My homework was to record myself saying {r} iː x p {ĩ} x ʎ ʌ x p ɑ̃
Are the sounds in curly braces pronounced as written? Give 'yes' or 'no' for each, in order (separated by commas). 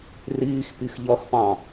yes, no